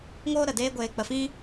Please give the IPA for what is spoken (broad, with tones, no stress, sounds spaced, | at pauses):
ŋ oː˦ ɾ ə˨ d eː˦ ɡʷ eː˧ k͡p ə˧ f ĩ˦